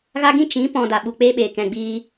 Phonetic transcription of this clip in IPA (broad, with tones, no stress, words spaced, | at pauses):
ɣa˦ɡĩ˦ t͡ʃĩ˨˦ pɔ̃˧ da˨ɓu˨k͡peː˦ɓeː˨ kɛ̃˨ɡ͡biː˧